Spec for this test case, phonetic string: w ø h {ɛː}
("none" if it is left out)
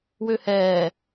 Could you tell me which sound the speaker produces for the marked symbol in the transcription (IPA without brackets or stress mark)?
ɛː